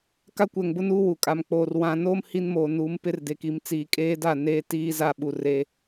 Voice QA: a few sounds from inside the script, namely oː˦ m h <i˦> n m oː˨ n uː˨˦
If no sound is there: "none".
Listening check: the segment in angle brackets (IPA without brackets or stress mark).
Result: i˦